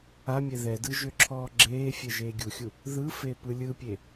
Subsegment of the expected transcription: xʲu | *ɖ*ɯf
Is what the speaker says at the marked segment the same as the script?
no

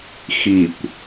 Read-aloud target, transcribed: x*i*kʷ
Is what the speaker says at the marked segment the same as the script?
yes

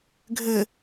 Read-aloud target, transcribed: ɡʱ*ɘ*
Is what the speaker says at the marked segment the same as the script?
yes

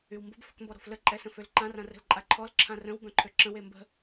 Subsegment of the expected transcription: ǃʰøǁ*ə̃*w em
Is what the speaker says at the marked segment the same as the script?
yes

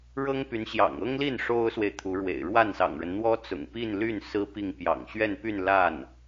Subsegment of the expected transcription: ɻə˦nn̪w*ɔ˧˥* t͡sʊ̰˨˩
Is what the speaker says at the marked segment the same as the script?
no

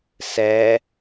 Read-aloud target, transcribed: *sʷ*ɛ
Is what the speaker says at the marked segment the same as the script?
no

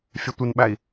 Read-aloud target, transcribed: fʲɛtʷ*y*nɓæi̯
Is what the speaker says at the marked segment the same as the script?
no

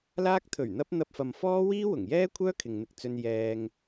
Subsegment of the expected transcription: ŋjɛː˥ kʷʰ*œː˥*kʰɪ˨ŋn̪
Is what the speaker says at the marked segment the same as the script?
yes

